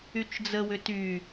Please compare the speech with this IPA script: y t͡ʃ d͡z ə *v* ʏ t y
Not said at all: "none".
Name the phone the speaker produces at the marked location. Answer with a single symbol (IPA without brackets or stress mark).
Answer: w